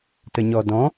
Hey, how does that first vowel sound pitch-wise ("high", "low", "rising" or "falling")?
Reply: low